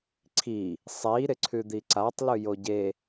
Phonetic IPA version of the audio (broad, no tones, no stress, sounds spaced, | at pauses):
ǀʰ i | sˤ i ɾ ɪ ǀʰ ʉ d̪ i ǀ a tˤ l ʉ j o ɟ e